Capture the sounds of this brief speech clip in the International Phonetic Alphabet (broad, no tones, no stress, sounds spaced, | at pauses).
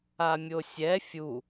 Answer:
a mʲ o sʲ ɛ fʲ u